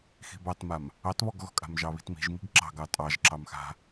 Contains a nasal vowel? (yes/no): no